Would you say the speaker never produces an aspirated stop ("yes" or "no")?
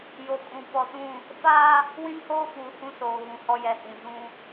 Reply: yes